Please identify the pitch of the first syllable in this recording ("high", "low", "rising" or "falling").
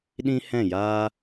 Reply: high